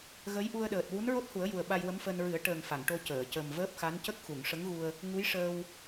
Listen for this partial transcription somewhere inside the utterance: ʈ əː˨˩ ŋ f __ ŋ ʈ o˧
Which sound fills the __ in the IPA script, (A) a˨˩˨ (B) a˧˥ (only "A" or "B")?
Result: A